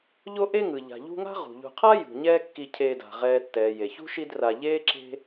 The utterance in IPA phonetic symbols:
ʎ o˥ ʔ e˦ ŋ ɯ˩ ʎ a̤˩ ʎ ṳ˦ ŋ a̤˥ ʁ ṳ˩ ʎ ṳ˨ qʰ a˥ j ṳ˩ ɲ ɛː˦ kː i˨ cʰ eː˨ d a̤˩ ʁ ɛː˨ tː ɛː˩ j e˩ ç ṳ˥ ʃ i˦ d r a˨ ʎ eː˥ ǁ e̤˦

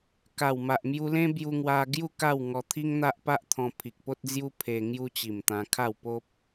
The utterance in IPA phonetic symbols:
k a˨˩ w m a˨ ʔ m j u˧ l ẽ˦ b j u˧ ŋ w a˧ ɡ j u˥˧ k a˥˧ w ŋ ɔ˧ t̪ʰ i˦ ŋ n̪ a˦ ʔ p a˦ ʔ t̪ʰ ɔ̃˧ pʰ i˨ k̚ p o˦ t̚ d͡z j u˦ pʰ e˧ ŋ j u˦ t͡ɕ i˨˩ m t̪ ã˧ kʰ a˥˧ w p o˦ p̚

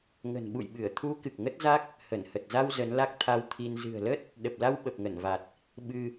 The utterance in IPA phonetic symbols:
ŋ ə̤˨˩ n ɓ ṵ˧˨ j ɓ ɨ˧˩ ə̯ t̪ʰ u˨˦ k ɨ˨˩ k̚ ŋ ə˦˥ t̚ z a˦˥ k̚ | h ə˧˩ n h ə˨˩ t̚ z a˧ w z ə˨˦ n l a˦˥ k̚ t̪ʰ a˧ w t̪ʰ i˧ n z ɨ̤˨˩ ə̯ l ə˦˥ t̚ | ɗ ə˨˩ p̚ l a˧ w ɓ ə˨˩ p̚ ŋ ə˧˩ n v a˨˩ t̚ | ɓ ɨ˧

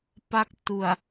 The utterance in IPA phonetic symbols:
p a˦˥ k̚ t u˨˩ a̯

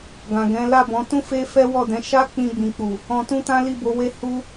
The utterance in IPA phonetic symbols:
ɡ ã˨ ɡ ɛ̃˨˦ l a˦˨ b ɔ̃˨˦ t ũ˦ f e˦ f ɛ˦ w ɔ˦˨ d ɛ̃˨˦ ʃ a˦ k͡p ĩ˧ ɡ͡b ĩ˨ k͡p u˨ | ɔ̃˧ t ũ˦ t ã˦ l i˦˨ b o˨˦ w e˦ h u˦

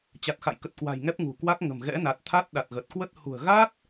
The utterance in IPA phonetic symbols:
t͡ɕ a˨˩ t̚ x a̰˧˨ j k ə˨˩ t̚ k w a̤˨˩ j ŋ ɛ˦˥ p̚ ŋ ṳ˨˩ k w a˦˥ k̚ ŋ ə̤˨˩ m ɣ ɛ̰˧˥ n a˨˩ t̚ t̪ʰ a˦˥ t̚ ɗ a˨˩ t̚ ɣ ə˨˩ t̚ k w ə˦˥ t̚ h ṳ˨˩ ə̯ ɣ a˦˥ t̚

